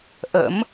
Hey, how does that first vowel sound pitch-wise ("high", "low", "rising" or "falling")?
rising